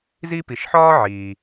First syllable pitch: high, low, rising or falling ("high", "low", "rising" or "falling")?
high